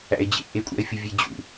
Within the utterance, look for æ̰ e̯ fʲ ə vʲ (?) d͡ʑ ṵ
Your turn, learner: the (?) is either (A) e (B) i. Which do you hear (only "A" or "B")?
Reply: A